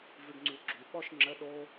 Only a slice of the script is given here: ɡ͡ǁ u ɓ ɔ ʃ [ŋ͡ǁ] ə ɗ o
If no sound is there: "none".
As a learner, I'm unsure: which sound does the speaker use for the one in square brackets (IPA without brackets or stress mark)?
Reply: ŋ͡ǁ